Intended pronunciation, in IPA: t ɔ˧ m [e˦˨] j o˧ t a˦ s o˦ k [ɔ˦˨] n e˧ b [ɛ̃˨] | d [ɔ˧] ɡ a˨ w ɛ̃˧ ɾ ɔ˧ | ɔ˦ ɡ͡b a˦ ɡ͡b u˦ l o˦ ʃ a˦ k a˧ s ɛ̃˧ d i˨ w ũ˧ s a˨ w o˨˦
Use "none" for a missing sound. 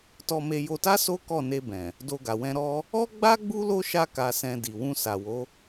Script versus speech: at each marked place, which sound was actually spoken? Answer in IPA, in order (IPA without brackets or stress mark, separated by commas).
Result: e˧, ɔ˦˨, ɛ̃˨, o˧